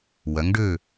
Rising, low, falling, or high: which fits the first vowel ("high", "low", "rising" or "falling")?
rising